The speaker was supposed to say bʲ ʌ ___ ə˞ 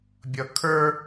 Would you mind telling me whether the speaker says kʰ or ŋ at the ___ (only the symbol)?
kʰ